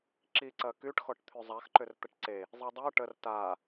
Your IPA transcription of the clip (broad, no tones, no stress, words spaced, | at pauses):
ǁiǀɐ kyʈxɔʈ t̪ʰyzˤaxǃʏr t̪əʈǀe | zˤidˤo ʈər ta